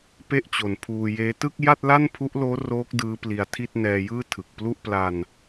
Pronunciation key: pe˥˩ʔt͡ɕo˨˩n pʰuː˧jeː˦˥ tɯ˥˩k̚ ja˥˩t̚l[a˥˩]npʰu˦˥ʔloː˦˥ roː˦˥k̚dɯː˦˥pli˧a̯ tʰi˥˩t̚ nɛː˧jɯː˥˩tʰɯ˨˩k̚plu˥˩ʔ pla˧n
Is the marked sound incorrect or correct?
correct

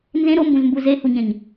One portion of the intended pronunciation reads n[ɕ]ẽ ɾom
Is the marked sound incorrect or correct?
incorrect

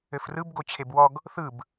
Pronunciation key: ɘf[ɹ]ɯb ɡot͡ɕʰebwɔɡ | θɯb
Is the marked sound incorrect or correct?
incorrect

